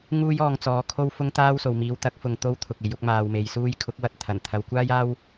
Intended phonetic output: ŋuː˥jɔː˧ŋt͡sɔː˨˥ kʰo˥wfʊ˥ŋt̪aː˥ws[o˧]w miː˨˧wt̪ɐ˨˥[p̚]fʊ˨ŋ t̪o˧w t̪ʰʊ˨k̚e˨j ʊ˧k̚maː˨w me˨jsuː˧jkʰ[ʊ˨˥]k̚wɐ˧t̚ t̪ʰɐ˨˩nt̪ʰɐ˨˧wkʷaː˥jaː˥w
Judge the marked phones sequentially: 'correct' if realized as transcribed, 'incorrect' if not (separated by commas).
incorrect, incorrect, correct